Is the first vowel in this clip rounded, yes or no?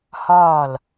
yes